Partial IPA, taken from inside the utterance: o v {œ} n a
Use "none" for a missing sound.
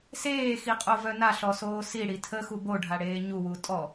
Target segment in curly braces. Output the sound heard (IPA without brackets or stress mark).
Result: œ